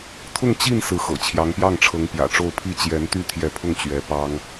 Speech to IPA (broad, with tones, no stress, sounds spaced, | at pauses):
t̪ʰ ʊ˥˧ ŋ t͡ɕ i˥˩ n s ɹ̩˧˥ x ɤ̰˨˩ t͡ɕʰ j ɑ˧˥ ŋ p j ɑ˥˩ ŋ ʈ͡ʂʰ ɤ˧˥ ŋ p j ä̰˨˩ ʈ͡ʂ o˥˧ ʊ̯ pʰ i˥˩ t͡ɕ j ɛ˧˥ n t̪ y˥˩ t̪ʰ j ɛ˧˥ pʰ ʊ˥˩ ŋ t͡ɕ ɥ ɛ˧˥ p ɑ˥ ŋ